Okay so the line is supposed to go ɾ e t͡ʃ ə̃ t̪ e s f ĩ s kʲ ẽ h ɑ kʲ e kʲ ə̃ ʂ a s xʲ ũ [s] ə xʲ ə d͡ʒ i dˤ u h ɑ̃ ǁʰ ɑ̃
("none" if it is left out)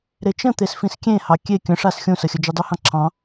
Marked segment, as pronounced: s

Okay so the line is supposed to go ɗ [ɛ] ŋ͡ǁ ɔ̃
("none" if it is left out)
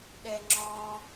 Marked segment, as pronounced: ɛ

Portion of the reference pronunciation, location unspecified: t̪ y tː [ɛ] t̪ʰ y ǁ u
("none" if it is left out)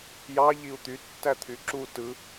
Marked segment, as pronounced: æ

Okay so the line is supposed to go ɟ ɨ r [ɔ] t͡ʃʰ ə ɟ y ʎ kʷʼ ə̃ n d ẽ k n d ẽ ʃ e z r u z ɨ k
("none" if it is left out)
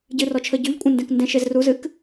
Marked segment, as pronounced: ɔ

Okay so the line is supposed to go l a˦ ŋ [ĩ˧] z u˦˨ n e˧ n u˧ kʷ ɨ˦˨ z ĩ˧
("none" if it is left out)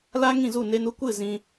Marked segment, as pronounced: ĩ˦˨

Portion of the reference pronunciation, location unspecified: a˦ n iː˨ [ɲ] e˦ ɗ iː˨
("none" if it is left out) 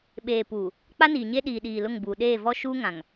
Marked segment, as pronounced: ɲ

